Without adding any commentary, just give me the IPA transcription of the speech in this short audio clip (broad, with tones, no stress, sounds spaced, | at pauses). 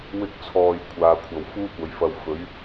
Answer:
w ɪ˧ k̚ t͡sʰ ɔː˨ j kʷʰ aː˨˧ kʷʰ ɐ˨ w f uː˥ kʷ ɐ˨˧ j f ɐ˧ w f ɵ˨˥ ɥ